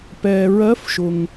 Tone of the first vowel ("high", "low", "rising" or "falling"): low